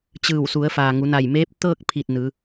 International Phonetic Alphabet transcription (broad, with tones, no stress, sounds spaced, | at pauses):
t͡ɕ ɯː˧˩ w s u˩˧ ə̯ f aː˩ ŋ u˩˧ n a˧˩ j m eː˧˥ p̚ t̪ ɤː˥˨ k̚ pʰ i˧˩ t̚ n ɯː˩˧